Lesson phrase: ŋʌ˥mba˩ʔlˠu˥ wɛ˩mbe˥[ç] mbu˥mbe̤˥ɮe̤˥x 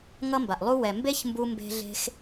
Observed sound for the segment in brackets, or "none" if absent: ç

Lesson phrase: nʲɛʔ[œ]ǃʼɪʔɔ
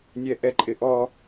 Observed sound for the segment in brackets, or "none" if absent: ɛ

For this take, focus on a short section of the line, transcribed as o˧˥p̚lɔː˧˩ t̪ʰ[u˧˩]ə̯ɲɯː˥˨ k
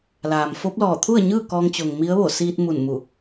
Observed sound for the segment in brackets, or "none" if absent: u˥˨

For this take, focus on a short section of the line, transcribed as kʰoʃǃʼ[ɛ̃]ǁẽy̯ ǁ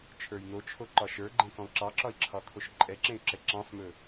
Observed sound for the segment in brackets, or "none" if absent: ɛ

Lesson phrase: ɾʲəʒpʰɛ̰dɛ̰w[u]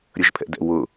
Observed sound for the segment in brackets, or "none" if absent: ʊ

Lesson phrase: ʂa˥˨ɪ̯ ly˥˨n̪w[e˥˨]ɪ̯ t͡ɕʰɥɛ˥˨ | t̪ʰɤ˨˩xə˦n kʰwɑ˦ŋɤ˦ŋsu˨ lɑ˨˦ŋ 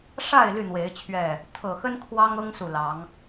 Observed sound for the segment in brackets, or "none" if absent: e˨˦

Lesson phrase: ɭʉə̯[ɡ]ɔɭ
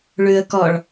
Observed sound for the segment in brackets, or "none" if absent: k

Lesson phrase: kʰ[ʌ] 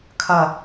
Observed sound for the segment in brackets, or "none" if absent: ʌ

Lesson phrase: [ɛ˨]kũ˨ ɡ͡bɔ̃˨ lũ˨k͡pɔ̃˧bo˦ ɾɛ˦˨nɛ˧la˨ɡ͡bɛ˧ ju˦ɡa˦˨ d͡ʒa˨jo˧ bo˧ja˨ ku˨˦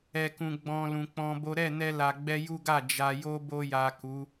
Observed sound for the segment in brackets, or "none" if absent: ɛ˨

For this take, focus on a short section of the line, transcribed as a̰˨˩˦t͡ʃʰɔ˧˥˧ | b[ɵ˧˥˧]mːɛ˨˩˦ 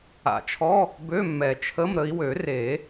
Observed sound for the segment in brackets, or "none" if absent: ø˧˥˧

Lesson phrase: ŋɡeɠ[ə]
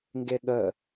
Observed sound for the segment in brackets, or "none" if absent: ə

